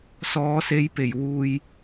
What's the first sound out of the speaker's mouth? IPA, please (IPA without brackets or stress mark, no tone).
s